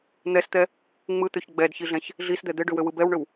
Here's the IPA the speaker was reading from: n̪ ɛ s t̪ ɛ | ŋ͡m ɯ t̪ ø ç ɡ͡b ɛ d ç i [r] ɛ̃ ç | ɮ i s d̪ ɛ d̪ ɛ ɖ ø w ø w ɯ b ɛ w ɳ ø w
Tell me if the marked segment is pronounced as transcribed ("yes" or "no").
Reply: no